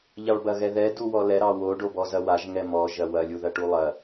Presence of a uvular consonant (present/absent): absent